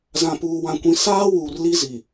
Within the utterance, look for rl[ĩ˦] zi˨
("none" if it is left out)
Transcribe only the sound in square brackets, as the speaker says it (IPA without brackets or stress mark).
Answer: i˦